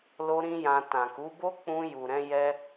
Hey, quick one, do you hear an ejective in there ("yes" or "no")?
no